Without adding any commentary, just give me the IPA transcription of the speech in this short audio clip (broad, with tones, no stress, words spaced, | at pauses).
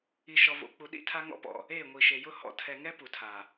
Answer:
i˨ʃɔ˨vo̰˨k͡pu˨ ɗḭ˦tʰa˦ŋɔ̰˦pɔ̰˨ | e˦˨ ŋʷi˨ʃe˨jʊ˦ hɔ̰˨ tʰɛ˨ŋɛ˦ pu˨tʰa˨